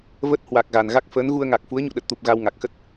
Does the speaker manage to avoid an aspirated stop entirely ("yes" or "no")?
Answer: yes